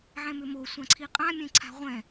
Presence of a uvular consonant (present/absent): present